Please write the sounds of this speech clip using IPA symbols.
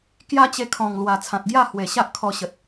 kja˦t͡ɕe˧kʰɔ̃˨˩ŋlwa˨˩ t͡sʰã˨t̚ɡja˥˧hwe˨˩ɕa˦ʔ kʰɔ˧ɕə˨t̚

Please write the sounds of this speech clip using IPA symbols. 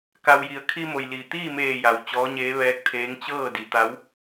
ka˩wji˩˧ə̯ kʰi˧mo˩jliː˩ t̪iː˥˨meː˧˩ja˩w t͡ɕɔː˧˥ɲeː˧˥ ʋɛː˧˥k̚t̪ʰeː˧˥ŋ t͡ɕɤː˥˨di˩˧t̪a˧˥w

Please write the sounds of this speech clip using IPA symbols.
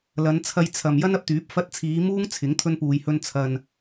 lɐ˨˧nt͡sʰɐ˧j t͡sʰɐ˨m jɐ˥nɐ˧p̚t̪yː˨˥p̚ fɐ˧t̚t͡sʰiː˨˧ muː˥ŋt͡sʰɪ˨˥ŋ t̪ʰɵ˧npuː˨jhɵ˧n t͡sʰɐ˨n

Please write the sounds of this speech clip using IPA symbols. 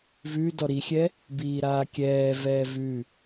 vʉ dɔɾixʲɛ | biːɾaːkʲɛːvɛː vʉ

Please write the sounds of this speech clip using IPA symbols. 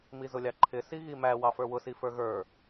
mizʊlʲɑǃʰɪ siɣimæ wɑfə˞wʊ sifə˞ɣə˞

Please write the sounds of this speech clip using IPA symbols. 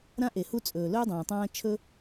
ɾã˦ʔe˨hu˦ t͡sʼɵː˨lɵː˦dˤãː˨ tˤãː˦ t͡ʃʰɵ˦

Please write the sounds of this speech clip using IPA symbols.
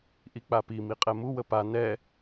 ʔik͡papi miqʼɛmu wəpa nɛ

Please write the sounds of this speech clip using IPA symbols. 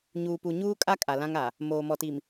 ɲuː˨pu˨ ɲuː˦kʼa˦ kʼa˨lã˦ŋ a˨ | moː˨mɔ˨ti˨m

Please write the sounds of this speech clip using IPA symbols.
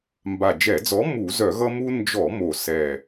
mba˨˩d͡ʒɛ˧˩˧d͡zɔ˨˥ mu˧˩˧zœ˧˩˧ɣʌ˦ mu˦ nd͡ʒɔ˧˩˧mo˨˩ sɛ˨˩

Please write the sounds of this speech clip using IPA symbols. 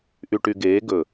ʔy˨ʈy˨ ɡeː˨˦ ɡɵ˨

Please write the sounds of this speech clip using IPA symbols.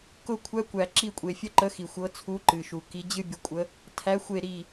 kʊ˧˩kʷʰæ˨˦ kʷæ˩ǁi˧˩kʷʼe˩ fʲə˦ǃə˨˦xi˩ xʷɤ˨˦t͡sʰu˨˦ǃɨ˩ʃu˩ ki˨˦d͡ʑɨ˦ bʲʊ˨˦kʷʼə˨˦ | tʰæ˨˦xʷe˧˩ ɾi˧˩

